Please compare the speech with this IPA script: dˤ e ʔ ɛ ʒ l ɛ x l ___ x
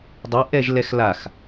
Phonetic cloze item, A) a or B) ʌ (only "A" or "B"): A